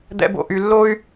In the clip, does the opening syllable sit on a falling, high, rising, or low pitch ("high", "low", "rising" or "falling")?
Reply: high